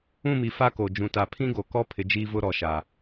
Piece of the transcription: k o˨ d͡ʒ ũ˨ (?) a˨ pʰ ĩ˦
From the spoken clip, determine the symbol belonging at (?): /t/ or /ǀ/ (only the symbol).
t